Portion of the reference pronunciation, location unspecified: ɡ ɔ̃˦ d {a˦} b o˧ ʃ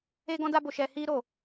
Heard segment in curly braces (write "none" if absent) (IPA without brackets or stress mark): a˦